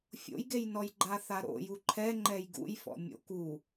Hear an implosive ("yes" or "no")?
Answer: no